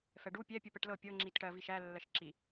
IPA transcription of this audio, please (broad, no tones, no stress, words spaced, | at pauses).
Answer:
fɛɖu pʲɛ pʲupɛʈlɤ pʲɤ ŋ͡ǁitʈɜ viʃæ lːɜʃǁi